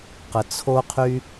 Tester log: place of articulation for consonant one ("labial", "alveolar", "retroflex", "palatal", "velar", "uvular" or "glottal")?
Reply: uvular